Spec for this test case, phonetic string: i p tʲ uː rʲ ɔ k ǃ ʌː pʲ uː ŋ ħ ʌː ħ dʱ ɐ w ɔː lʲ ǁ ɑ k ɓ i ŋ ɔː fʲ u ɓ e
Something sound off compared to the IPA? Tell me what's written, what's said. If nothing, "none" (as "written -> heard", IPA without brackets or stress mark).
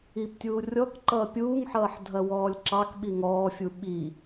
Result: e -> i